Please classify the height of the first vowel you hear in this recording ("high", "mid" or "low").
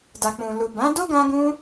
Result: low